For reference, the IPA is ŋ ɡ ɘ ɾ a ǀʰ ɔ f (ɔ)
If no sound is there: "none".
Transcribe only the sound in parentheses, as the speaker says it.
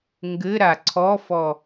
ɔ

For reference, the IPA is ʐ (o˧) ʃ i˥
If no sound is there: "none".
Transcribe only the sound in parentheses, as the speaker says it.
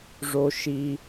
o˧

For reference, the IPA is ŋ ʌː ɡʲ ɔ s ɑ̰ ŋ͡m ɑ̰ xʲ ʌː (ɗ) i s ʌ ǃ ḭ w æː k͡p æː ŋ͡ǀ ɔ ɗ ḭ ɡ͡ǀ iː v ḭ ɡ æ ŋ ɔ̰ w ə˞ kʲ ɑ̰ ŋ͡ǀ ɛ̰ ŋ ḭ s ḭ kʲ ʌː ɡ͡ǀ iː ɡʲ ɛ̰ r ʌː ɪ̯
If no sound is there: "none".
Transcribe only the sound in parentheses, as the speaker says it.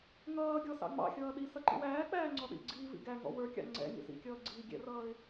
ɗ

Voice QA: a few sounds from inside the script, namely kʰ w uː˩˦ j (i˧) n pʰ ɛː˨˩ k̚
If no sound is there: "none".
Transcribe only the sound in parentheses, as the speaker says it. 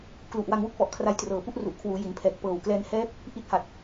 i˩˦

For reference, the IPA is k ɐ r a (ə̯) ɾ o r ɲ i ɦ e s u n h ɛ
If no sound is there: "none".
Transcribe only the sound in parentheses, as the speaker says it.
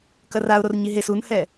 ʊ̯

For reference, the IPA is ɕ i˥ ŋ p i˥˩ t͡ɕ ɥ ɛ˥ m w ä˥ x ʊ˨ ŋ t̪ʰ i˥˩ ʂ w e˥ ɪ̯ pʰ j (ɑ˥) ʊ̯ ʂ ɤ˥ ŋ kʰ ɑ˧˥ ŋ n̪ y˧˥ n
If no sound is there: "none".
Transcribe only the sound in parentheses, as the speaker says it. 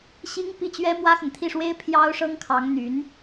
ɑ˥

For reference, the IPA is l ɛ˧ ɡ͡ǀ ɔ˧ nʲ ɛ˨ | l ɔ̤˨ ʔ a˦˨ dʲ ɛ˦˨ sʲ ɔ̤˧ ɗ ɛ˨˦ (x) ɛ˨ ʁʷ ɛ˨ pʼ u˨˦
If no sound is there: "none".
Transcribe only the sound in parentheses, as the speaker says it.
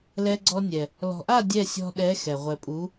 x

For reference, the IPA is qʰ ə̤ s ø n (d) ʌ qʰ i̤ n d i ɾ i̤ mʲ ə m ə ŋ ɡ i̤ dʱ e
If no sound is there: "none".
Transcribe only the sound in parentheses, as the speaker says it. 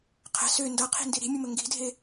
d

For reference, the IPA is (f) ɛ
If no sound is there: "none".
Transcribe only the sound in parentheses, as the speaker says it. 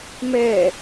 m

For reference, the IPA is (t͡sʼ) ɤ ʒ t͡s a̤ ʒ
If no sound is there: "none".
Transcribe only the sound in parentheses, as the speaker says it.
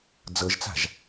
d͡z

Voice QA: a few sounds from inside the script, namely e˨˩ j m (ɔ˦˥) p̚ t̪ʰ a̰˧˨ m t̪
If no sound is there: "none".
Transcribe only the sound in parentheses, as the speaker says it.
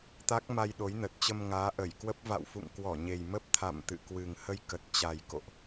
ə˦˥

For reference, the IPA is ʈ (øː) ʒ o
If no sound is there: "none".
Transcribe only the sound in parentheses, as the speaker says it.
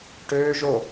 øː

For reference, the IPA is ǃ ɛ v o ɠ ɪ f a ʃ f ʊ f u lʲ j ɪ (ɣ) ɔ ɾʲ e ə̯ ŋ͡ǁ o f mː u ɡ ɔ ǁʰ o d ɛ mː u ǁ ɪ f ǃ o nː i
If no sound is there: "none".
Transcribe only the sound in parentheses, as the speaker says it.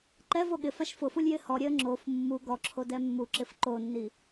h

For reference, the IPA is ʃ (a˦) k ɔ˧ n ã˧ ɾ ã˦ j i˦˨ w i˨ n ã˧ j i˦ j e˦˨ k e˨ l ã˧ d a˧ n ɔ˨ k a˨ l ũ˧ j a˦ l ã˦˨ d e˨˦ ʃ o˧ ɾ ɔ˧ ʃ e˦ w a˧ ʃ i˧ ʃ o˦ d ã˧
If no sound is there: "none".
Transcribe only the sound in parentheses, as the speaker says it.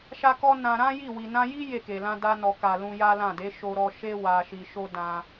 a˧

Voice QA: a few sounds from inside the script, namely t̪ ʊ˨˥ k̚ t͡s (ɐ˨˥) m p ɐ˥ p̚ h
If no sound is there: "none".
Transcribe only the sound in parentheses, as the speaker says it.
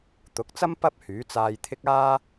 ɐ˥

